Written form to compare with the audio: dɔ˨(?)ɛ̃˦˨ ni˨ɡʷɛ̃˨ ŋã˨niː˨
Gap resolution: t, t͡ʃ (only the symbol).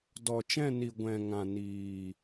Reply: t͡ʃ